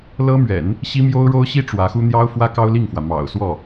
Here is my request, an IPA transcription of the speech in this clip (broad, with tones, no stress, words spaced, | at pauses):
lɤ˥mɥɛ̰˨˩˦n | ɕi˥mjo˥ʊ̯ ɻo˥ʊ̯ɕi˥ ʈ͡ʂwä˧˥xu˥ n̪jɑ˥ʊ̯ fwä˥ kɑ˥ʊ̯li˥˩ŋfwä˩ mɑ̰˨˩ʊ̯ swɔ˥˩